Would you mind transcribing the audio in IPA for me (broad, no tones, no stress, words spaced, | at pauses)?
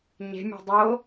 ɲe̤mʲe̤ dˤo